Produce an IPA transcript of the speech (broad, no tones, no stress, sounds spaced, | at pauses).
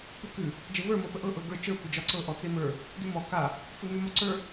p ʉ k ʉ | d͡ʒ ə v ə˞ m ɤ p ə ʔ ɤ ʔ ɤ ɡ ə˞ t͡ʃ ə˞ kʷ ə d͡ʒ ɒ ǀ ɤ ʔ ɔ t͡s e m ə˞ | d ʉ m ɔ k a | t͡s ɤ n ʉ m ɒ ǀ ə˞